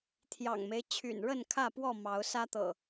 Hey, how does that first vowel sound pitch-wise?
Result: low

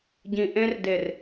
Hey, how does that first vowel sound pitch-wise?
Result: low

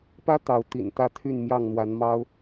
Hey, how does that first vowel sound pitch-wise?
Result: high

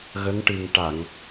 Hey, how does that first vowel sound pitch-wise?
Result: rising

